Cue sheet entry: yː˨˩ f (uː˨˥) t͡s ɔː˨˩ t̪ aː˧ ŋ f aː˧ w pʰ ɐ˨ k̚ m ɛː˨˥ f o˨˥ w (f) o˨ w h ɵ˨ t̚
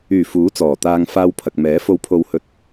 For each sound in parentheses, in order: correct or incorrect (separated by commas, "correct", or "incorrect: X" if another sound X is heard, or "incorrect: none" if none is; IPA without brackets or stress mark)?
correct, incorrect: pʰ